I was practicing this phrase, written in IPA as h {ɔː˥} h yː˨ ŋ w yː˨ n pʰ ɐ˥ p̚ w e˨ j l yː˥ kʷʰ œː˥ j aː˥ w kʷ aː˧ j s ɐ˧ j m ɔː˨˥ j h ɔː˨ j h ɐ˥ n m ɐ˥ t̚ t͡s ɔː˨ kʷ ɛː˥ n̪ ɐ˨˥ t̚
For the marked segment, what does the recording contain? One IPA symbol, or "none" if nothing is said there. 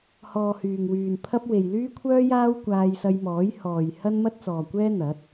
ɔː˨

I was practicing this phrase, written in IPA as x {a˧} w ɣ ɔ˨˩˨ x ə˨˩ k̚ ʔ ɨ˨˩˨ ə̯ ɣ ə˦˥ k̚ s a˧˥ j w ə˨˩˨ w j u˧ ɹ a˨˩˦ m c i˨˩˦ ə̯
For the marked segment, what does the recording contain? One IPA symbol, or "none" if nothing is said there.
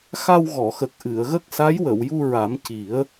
a˧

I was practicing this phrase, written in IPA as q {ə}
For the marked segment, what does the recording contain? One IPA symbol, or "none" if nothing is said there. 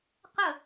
ə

